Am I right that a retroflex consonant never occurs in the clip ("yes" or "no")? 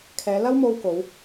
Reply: yes